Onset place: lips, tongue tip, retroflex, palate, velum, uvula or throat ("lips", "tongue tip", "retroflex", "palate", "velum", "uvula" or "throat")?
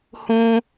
throat